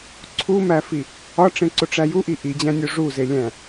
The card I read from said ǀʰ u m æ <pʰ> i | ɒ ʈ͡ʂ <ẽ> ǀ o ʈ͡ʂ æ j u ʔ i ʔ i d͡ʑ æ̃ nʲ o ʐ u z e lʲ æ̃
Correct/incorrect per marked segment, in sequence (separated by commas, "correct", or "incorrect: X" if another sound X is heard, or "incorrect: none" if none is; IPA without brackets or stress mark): incorrect: f, correct